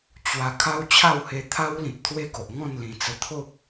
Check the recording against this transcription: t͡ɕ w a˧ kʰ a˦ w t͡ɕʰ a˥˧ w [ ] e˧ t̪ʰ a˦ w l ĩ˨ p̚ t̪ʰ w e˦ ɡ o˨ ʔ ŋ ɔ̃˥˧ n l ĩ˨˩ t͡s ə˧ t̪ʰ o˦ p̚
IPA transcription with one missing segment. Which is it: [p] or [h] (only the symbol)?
h